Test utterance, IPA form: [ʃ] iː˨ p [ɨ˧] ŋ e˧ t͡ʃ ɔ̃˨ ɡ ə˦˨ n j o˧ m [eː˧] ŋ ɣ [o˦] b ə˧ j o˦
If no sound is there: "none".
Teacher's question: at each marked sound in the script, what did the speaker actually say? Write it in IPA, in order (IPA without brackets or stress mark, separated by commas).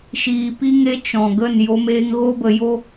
ʃ, i˧, eː˧, o˦